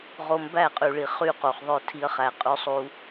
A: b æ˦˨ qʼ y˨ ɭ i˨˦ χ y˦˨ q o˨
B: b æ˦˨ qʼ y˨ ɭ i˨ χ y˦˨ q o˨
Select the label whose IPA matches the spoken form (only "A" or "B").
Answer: B